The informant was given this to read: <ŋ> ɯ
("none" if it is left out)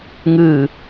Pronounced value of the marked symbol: ŋ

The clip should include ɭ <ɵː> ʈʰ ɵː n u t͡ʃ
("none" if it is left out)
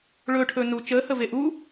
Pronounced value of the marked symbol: ɵː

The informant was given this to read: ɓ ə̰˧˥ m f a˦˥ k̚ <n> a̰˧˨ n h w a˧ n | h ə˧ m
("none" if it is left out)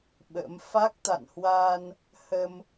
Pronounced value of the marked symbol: t̪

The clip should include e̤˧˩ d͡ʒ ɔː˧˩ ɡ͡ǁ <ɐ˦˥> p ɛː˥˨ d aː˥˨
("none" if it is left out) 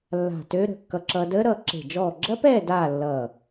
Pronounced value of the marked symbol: ɐ˦˥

